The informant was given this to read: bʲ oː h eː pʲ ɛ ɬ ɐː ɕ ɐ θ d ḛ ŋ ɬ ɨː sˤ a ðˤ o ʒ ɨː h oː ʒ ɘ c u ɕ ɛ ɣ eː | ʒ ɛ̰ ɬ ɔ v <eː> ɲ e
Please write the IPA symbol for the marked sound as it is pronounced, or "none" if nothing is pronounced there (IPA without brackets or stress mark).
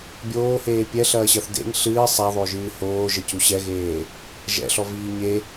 iː